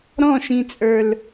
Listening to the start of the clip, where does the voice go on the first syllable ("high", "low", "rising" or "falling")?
falling